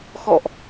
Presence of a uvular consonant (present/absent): absent